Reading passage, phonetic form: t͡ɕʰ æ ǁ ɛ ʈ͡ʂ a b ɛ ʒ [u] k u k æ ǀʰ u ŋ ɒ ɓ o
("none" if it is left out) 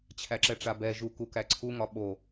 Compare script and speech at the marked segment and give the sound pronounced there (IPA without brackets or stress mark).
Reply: u